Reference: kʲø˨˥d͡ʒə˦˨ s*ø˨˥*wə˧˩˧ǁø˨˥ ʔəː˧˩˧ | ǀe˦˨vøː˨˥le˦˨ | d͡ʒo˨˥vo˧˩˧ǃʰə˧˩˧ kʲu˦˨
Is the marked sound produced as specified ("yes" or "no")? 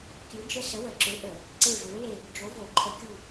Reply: no